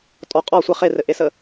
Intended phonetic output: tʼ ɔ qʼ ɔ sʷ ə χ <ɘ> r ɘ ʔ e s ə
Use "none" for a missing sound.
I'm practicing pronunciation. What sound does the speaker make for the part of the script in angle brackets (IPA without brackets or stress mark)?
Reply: e